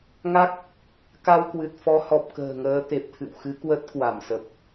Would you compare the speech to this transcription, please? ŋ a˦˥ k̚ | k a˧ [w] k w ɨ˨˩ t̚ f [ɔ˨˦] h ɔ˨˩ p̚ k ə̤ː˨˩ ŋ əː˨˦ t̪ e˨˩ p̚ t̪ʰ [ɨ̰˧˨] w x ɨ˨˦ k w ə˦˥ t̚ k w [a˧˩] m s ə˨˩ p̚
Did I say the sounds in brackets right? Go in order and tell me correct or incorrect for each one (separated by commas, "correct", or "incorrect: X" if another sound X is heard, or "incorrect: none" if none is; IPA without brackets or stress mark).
correct, correct, correct, correct